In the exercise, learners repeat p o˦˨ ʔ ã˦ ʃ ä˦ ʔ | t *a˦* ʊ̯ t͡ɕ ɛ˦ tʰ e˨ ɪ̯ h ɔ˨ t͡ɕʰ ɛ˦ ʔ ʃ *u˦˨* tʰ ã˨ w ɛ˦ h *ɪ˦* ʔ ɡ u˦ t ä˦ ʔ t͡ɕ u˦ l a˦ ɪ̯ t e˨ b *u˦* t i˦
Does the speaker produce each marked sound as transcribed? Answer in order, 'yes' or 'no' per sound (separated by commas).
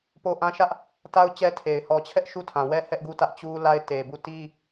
yes, yes, no, no